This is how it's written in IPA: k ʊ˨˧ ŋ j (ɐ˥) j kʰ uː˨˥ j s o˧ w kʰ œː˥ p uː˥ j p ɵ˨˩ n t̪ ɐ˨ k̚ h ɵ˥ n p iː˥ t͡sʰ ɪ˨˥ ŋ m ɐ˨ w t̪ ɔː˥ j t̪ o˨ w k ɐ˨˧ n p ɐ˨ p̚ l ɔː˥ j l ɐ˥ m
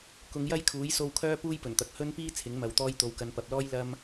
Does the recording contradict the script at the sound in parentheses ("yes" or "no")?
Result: no